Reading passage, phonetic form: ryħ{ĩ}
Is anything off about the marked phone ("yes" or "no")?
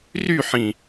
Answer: no